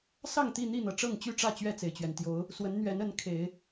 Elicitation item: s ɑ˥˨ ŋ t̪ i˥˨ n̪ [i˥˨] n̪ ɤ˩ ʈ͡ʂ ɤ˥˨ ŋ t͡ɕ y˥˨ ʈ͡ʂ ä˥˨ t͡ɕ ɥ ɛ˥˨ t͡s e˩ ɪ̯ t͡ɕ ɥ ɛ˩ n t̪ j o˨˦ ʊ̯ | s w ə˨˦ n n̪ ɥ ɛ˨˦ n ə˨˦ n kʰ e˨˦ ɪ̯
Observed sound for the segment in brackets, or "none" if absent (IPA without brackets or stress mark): i˥˨